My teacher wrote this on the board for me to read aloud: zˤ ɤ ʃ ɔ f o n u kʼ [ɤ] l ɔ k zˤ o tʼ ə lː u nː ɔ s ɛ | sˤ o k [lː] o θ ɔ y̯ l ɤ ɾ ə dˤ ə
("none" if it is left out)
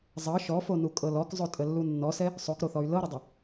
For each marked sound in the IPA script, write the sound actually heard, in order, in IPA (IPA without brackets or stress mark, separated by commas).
ɤ, ɾ